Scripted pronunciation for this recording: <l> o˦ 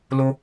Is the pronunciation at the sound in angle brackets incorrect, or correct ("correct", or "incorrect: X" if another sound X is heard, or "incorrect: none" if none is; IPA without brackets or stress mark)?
correct